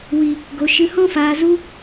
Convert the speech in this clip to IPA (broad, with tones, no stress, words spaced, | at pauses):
wi˨ | ɡo˨ ʃɨ˨hɔ̃˧faː˨ zu˧